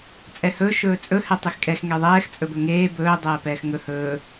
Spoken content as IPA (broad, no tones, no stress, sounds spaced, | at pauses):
t͡sʼ ɛ h ɵː ʃ ɵː t͡sʼ ɵ h ɛ tˤ e x kʼ ɛ x ŋ ɛ ðˤ ɛː x t͡sʼ ɵ b ɵ ŋ eː b ɵː dˤ ɛː p ɛː x ŋ ɵ h ɵː